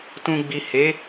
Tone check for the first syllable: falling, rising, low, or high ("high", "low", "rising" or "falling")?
low